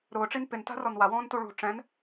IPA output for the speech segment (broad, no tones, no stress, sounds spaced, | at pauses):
ɾ ʊː ʈ͡ʂ i n p ɪ n t a̤ r ɔ n w a w ɔ̃ː n t u ɭ ṳ ʈ͡ʂ ɛ̃ n